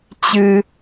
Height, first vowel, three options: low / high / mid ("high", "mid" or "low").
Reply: high